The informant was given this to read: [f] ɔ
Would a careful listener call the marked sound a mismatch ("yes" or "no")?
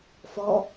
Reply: no